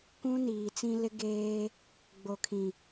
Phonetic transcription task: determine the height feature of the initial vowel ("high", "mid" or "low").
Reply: high